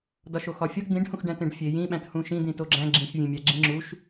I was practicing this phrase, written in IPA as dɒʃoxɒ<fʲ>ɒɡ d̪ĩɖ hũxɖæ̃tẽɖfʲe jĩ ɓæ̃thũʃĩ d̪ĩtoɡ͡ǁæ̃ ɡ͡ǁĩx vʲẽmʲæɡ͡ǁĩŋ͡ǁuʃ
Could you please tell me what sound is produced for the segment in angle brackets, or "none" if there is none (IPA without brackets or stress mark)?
fʲ